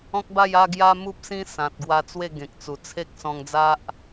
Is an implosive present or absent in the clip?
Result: absent